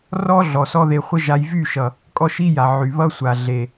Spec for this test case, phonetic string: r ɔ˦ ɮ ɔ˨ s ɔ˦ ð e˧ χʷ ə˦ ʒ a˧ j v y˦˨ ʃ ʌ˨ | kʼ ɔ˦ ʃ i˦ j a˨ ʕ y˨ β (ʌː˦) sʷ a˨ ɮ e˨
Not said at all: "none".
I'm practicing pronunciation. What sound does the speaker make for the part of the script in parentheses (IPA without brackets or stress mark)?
ʌ˦